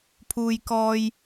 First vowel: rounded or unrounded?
rounded